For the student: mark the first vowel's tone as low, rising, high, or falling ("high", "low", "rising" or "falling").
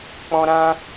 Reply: high